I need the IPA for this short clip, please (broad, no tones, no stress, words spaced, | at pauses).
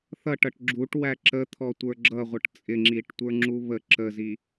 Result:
θʌʈʌʈ ɡ͡ǁuʈwæ ǁət̪ʰɔtʷə˞ ɡ͡ǁʌʁʷʌʈ t͡sʼɪŋ͡ǁiʈtʷə˞ŋ͡ǁu βə ǁəzi